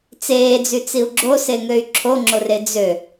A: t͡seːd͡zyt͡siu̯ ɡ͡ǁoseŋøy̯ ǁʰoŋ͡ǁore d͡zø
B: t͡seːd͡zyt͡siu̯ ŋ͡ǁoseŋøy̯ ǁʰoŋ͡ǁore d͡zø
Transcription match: A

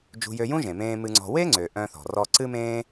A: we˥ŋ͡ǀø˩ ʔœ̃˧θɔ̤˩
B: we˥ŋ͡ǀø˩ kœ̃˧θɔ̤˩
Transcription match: A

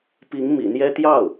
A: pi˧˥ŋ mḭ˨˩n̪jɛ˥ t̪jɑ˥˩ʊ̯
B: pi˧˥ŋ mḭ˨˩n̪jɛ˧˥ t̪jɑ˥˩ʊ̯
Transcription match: A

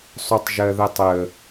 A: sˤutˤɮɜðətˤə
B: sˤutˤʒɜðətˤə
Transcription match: B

